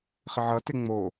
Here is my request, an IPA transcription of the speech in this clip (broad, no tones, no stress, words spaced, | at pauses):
χɪʕʌtɪ ŋ͡mo